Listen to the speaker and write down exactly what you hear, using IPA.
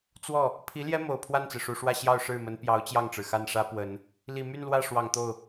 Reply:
t͡swɔ˥˩ | pʰi˧˥ljɛ˥ mo˨˩ʊ̯ pʰwa˥˩nt͡sɹ̩˩ʂu˨˩ʂwä˥˧ ɕjɑ˥˧ʊ̯ʂɻ̩˥˩mə˧˥n pjɑ˧˥ʊ̯t͡ɕjɑ˥˩ŋʈ͡ʂɻ̩˩ xa˥˩nʂä˥ pwə˨˩˦n | li˨˩my˥˧n lwä˥˩ ʂwɑ˨˩ŋt̪o˥˩ʊ̯

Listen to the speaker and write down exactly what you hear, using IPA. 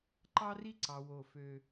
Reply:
ǃɑ˦ri˦ǀɑ˨ wo˦˨ fø˦

